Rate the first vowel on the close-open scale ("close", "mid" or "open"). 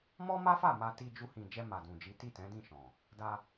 mid